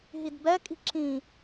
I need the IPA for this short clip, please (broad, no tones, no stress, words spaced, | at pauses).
ɦidbɛ kʼi̤ǁĩ